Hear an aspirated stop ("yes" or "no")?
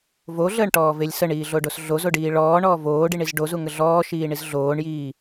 no